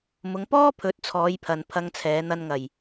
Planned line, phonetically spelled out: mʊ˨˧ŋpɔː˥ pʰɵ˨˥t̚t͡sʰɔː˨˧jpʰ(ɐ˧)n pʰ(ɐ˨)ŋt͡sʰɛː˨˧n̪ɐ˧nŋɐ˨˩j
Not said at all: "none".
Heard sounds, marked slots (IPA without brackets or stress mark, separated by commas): ɐ˨, ɐ˧